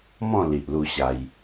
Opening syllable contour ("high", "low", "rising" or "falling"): falling